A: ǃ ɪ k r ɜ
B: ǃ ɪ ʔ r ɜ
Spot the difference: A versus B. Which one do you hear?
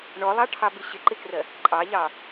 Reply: A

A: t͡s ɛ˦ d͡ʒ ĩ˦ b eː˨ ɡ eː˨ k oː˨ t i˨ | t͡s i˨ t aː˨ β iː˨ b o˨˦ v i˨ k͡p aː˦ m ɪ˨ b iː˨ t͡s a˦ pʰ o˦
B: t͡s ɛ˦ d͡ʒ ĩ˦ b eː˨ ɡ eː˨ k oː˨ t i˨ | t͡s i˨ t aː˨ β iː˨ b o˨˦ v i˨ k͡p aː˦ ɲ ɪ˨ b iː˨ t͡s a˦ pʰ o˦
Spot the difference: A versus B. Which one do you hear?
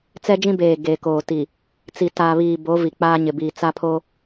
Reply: B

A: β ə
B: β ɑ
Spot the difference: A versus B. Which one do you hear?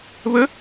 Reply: A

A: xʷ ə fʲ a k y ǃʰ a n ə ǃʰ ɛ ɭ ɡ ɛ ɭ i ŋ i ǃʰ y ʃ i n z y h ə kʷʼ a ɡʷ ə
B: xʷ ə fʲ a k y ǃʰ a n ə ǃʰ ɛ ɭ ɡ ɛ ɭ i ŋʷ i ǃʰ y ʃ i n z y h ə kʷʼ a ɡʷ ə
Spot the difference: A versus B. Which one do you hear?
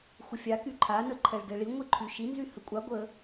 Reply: B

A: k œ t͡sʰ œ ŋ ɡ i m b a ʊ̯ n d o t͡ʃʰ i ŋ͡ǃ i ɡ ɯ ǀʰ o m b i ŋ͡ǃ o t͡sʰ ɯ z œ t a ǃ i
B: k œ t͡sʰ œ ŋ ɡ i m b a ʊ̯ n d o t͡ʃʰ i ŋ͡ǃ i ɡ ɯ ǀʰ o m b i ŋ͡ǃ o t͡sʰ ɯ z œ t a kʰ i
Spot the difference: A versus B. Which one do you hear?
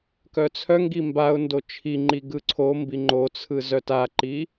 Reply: A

